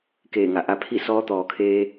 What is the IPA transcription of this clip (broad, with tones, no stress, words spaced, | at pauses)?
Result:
keː˧˩ŋa˩ʔa˧pʰi˥˨ sɔː˧˥t̪ɔː˩kʰeː˧